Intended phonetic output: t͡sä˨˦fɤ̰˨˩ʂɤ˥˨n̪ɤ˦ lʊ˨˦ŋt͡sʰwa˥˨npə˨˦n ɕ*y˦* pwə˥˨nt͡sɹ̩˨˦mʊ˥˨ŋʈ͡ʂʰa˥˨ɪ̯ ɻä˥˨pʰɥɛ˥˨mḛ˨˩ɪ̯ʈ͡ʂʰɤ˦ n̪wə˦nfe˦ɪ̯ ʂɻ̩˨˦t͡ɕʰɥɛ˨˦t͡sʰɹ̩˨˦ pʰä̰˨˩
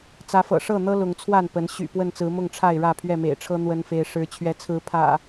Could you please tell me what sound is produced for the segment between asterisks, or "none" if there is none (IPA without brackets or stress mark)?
y̰˨˩